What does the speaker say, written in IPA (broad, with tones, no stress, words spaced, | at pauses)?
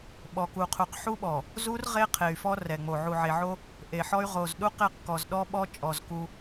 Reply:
ɓɔ˨ku˨qʰu˨q ħu˦ɓɔ˨ | zu˦r ʁe˦ qʰe˨y̯fɔ˦ rɛ˨ŋ͡mo˨ ʕu˨ʕe˨ʕo˦ | ʔe˨ħɔ˦y̯ ʁo˨zɗu˦qe˦˨qkɔ˨z ɗɔ˦ɓɔ˦ t͡ʃʼɔ˨z ku˦